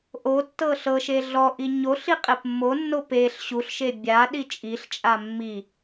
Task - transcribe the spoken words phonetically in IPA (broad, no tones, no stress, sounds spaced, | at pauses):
ʔ o tː ɤ ɬ ɤ ʃ e ɮ ɔ ʔ i ɲ o ɬ i qʼ e p mː o nː o p e ɬ ɕ u ɬ ʃ e bʲ a ɗ i t͡ʃʼ i ɬ t͡ʃʼ a mː i